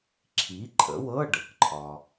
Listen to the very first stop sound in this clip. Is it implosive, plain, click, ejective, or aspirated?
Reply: click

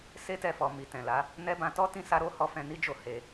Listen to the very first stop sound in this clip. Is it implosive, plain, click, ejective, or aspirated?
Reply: plain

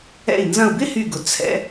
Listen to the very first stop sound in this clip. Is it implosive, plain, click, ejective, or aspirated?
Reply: plain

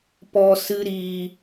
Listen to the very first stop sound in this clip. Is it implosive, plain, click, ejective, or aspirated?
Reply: plain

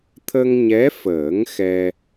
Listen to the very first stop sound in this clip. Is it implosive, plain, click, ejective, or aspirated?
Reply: aspirated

